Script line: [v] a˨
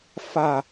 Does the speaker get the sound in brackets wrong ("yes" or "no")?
yes